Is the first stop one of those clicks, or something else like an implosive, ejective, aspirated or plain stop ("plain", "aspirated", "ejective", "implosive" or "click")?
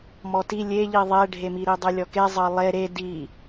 plain